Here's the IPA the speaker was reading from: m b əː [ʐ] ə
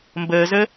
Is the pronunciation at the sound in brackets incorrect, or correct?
incorrect